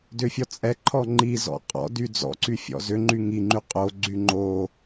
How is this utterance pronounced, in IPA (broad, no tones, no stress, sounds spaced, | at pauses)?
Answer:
d ʏ fʲ ɔ t͡sʼ ɛ ǃʰ ɔ ŋ͡ǃ i z ɔ̰ qʼ ɔ̰ d y d͡z ɔ̰ ǀ y fʲ ɔ̰ z ʏ ŋ͡ǃ y ŋ i ŋ͡ǃ y qʼ o ɡ͡ǀ y ŋ͡ǃ o